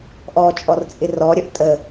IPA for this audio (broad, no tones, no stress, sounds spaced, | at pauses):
ʔ ɔ t͡ʃʼ ɔ r t͡sʼ ɪ r ɔ ɾʲ ʌ ʔ tʼ ə